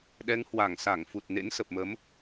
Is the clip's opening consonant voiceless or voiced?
voiced